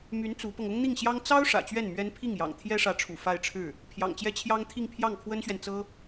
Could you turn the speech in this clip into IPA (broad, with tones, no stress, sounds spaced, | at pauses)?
m y˧˥ n t͡s u˧˥ p ɤ˧ ŋ ʊ˥ ŋ n̪ i˥˩ ŋ ɕ j ɑ˥ ŋ t͡s ɑ˥ ʊ̯ ʂ ä̰˨˩ t͡ɕ ɥ ɛ˥˩ n m ɥ ɛ˥ n pʰ i˥˩ ŋ j ɑ̰˨˩ ŋ t̪ʰ j ɛ˥ ʂ ä˧˥ ʈ͡ʂʰ ṵ˨˩ f a˥˧ ɪ̯ ʈ͡ʂʰ ɻ̩˥˩ | pʰ j ɑ̰˨˩ ŋ t͡ɕ j ɛ˥ t͡ɕʰ j ɑ˥ ŋ t̪ʰ i˥˧ ŋ pʰ j ɑ˥˩ ŋ kʰ w ə˥ n ɕ ɥ ɛ˨ n t͡s ɤ˥